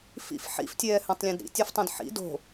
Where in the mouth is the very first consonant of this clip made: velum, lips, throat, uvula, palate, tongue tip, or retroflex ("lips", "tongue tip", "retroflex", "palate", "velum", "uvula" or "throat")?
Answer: lips